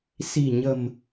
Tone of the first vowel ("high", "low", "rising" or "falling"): low